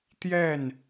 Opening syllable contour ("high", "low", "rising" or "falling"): falling